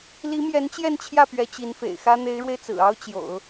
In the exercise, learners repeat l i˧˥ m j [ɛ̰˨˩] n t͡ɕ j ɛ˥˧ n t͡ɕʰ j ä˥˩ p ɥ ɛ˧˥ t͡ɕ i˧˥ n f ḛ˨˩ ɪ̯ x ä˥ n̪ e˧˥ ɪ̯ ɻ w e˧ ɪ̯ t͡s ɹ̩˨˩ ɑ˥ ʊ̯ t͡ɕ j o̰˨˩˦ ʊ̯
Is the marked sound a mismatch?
yes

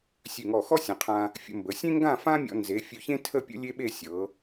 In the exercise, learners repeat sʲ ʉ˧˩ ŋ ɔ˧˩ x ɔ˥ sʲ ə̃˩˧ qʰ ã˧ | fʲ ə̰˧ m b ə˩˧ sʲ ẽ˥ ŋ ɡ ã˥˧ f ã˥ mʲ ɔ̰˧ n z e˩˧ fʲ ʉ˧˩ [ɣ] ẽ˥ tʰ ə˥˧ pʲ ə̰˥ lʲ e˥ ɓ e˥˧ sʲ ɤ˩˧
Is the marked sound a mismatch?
yes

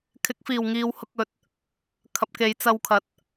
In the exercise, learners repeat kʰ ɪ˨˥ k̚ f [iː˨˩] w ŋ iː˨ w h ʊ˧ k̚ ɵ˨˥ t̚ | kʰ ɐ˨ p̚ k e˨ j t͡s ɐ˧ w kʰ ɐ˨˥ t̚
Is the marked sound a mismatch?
no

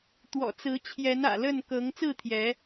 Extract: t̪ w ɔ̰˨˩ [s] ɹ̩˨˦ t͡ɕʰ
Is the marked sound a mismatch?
yes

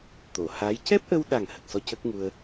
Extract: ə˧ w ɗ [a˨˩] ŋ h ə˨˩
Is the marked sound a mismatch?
no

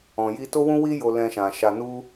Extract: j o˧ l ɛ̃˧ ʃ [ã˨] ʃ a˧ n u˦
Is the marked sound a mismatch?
no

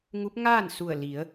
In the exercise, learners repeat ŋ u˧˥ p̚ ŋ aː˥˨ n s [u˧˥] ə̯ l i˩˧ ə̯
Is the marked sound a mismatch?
yes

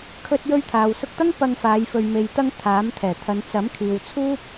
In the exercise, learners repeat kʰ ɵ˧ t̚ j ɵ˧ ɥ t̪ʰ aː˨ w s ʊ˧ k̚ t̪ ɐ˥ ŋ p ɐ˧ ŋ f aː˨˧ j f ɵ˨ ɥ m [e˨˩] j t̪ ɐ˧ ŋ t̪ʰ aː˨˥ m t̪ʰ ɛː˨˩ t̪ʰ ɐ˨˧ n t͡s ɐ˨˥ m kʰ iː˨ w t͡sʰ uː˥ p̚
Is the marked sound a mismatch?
yes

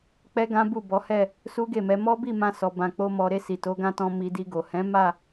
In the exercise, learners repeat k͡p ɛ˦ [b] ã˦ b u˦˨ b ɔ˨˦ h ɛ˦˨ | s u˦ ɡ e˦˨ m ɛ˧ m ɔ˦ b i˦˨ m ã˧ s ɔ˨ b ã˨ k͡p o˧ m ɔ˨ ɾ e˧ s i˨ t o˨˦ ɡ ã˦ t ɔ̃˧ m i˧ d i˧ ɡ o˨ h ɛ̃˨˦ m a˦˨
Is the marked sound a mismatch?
yes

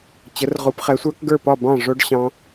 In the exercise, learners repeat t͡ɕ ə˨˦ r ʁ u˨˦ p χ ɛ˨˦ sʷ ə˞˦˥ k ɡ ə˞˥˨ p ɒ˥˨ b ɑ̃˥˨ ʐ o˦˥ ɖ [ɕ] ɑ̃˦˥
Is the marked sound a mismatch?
no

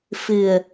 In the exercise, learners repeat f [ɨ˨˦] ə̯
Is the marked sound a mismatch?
yes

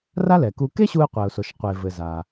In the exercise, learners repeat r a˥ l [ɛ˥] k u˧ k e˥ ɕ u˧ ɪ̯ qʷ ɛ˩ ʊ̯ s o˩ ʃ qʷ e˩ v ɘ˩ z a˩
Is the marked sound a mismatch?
yes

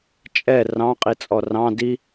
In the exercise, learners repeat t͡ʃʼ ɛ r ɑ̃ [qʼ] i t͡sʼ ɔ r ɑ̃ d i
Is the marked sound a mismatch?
no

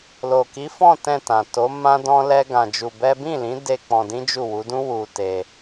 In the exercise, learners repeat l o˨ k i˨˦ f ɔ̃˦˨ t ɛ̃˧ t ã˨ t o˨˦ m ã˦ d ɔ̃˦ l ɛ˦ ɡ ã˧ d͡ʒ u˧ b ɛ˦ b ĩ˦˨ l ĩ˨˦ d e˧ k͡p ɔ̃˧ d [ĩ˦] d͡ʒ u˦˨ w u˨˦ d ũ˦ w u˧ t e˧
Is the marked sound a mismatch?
no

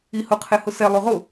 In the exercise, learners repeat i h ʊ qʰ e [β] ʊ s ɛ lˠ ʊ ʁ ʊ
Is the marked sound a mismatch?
yes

